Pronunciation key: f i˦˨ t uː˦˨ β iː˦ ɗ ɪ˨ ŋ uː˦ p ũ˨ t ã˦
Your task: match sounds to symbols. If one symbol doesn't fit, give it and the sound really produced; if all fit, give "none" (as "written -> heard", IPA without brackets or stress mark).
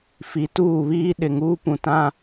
i˦˨ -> i˨˦